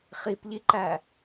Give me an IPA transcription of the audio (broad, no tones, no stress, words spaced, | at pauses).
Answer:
χipʎiǃæ